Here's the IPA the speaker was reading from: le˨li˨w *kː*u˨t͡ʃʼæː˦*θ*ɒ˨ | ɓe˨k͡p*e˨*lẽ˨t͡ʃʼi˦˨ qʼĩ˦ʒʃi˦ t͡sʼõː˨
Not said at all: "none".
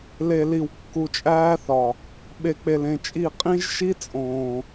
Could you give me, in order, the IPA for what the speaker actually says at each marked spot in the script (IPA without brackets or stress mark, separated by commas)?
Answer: kː, θ, e˨